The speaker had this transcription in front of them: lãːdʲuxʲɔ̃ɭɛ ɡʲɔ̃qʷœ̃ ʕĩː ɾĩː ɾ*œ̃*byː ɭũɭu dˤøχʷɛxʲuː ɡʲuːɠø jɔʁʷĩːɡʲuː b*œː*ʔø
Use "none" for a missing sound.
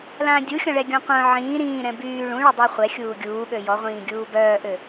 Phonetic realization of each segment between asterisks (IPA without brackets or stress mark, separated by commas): ɛ̃, œː